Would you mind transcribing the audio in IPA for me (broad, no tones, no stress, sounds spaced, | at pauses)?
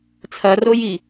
t͡sʰ ɐ r o j i